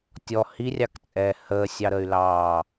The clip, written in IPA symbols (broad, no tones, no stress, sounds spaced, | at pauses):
tʲ ɔ h i rʲ ɑ k t͡sʼ ɛː h əː sʲ ɑ ɾ ə y̯ l ɑː